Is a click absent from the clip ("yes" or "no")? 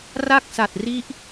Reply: yes